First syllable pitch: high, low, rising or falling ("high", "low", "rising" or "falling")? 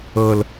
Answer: low